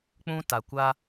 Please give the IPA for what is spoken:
k͡pũ˦ ta˨ kʷa˦

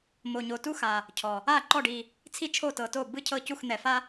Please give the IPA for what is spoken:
mo˨˩ɲo˨˩tu˥xa˨˩ | cʰɔ˨˩ | a˥˩ǃɔ˥˩ɖ i˨˩ | t͡sʰi˥t͡ʃʰo˥˩tɤ˨˩to˥˩ bɯ˥cʰɤ˥˩ cu˥˩xn̪ɛ˨˩ fa˥

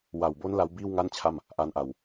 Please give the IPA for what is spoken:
wa˨˩wbo˦˥n la˦˥wbiː˥˩wŋa˥˩nt͡ɕʰa˥˩m | ʔa˦˥nʔa˧w

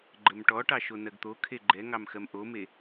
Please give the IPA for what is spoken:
ɡ͡ǃəmʈɔ ʈɑʃonɜɡt̪o kʰeɡ͡ǃɛ ŋɑmxɜmʔome

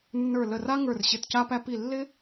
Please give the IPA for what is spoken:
nːə˞˨˩lə˨˩ra˧ ŋə˞˨˩r ɕɪ˨˩tca˧pæ˧ pi˨˩lːɪ˧

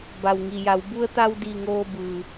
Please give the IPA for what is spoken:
ba˩wŋi˩ja˩˧w bu˧ə̯t̪a˧w di˩ ŋoː˧bɯː˩

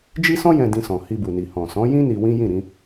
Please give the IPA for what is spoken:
d͡ʒi˦ sɔ̃˦jɛ̃˧ dĩ˧sɔ̃˨ hi˧bu˨ni˨ hɔ̃˨sɔ̃˨˦jĩ˦ ni˧wĩ˦ jĩ˦˨ɾĩ˨˦

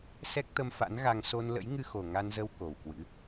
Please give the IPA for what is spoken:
sɛ˦˥k̚t̪ə˧mfa̰˧˥nɣa˧ŋ so˧nlə̰˧˥jŋɨ˧xo˨˩ ŋa˧nzə˧w ko˨˩wkwɨ̰˧˥

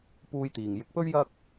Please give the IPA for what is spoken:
puː˧jt̪iː˨˩ŋ jɪ˨k̚pɵ˥ɥ jɐ˥k̚

